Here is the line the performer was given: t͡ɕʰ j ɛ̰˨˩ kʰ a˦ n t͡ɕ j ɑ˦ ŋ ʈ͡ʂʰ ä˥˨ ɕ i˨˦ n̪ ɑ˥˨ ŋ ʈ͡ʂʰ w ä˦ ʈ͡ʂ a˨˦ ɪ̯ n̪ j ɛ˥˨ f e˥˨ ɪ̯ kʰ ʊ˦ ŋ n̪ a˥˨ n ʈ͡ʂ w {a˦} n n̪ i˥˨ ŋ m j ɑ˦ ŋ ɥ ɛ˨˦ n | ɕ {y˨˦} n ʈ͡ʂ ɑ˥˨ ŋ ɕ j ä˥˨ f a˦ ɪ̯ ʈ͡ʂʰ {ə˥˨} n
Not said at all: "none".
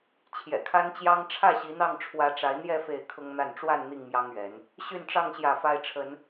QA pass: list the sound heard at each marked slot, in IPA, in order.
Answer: a˥˨, y˥˨, ə˨˦

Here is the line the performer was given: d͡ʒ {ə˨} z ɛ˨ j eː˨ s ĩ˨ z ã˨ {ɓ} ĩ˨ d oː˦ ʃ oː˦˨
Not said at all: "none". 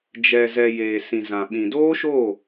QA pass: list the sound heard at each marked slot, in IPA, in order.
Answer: ɛ˨, ɓ

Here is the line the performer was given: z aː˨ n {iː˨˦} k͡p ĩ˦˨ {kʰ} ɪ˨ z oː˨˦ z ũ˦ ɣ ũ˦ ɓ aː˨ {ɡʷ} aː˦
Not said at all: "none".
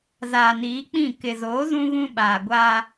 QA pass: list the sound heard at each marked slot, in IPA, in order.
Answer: iː˨˦, k, ɡʷ

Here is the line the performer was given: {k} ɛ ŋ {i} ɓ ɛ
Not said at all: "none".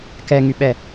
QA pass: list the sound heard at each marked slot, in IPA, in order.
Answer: k, y

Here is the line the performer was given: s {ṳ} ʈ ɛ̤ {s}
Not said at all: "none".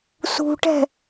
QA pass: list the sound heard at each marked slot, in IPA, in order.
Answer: ṳ, none

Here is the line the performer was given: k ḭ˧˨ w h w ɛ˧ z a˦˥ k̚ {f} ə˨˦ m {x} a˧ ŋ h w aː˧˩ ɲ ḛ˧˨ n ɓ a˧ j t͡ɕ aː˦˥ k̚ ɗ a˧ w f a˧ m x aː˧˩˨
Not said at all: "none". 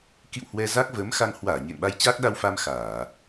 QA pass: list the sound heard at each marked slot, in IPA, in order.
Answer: v, x

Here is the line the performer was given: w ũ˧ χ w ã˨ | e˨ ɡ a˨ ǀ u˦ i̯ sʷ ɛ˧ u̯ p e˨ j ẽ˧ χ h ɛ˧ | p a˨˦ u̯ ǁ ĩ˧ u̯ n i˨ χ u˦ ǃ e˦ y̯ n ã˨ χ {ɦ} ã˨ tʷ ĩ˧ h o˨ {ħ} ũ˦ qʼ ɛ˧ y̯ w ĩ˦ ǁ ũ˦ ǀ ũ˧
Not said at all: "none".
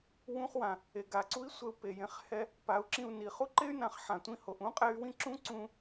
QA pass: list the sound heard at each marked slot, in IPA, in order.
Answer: ħ, ʔ

